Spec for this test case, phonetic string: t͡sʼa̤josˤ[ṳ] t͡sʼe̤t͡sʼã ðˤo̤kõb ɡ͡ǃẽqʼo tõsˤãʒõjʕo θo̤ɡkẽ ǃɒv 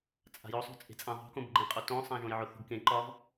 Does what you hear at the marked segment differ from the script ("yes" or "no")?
yes